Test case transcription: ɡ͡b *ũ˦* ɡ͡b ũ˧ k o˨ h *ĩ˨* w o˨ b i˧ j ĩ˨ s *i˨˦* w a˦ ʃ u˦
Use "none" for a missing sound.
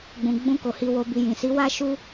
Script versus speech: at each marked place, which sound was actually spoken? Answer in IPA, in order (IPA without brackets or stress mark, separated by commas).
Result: ũ˨, i˨, i˨˦